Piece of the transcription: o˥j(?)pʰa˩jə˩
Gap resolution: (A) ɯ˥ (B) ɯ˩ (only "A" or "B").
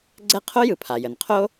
B